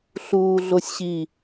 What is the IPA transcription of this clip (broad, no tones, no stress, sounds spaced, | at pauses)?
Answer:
ɬ uː ɮ o sʲ ɕ i